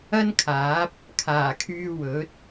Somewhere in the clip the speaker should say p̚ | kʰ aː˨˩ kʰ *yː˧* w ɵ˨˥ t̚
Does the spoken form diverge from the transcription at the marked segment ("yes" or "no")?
no